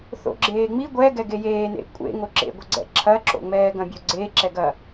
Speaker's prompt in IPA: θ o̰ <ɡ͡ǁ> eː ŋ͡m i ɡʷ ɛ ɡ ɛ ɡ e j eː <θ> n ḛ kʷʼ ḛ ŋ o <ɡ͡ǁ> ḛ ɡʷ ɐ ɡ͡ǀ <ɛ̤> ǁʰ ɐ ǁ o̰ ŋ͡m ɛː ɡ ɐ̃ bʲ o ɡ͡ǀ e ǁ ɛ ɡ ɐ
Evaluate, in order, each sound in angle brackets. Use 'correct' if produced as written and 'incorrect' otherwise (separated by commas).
correct, incorrect, incorrect, incorrect